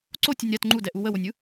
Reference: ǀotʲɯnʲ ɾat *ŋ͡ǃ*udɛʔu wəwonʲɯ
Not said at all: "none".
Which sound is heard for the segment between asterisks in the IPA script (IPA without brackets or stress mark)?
ŋ͡ǃ